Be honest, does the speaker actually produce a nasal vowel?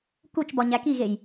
no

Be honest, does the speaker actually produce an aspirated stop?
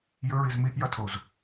yes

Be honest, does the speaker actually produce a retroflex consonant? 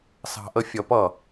no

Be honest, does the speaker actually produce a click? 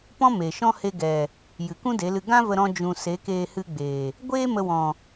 no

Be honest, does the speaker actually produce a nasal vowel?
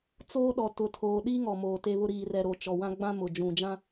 yes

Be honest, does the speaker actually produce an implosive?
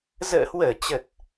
no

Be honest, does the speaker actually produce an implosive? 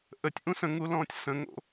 no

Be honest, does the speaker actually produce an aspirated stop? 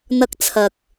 yes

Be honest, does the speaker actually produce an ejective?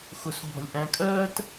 yes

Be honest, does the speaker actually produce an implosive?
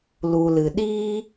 yes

